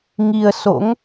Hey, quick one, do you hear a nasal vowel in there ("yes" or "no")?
no